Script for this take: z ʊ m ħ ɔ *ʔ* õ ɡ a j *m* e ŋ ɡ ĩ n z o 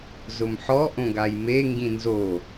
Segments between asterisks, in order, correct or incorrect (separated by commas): correct, correct